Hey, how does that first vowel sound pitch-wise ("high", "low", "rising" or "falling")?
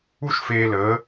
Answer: high